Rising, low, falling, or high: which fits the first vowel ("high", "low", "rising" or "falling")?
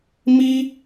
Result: high